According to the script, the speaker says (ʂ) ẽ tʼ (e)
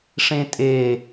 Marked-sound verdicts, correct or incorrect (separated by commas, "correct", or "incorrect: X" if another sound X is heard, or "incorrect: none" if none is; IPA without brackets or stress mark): correct, correct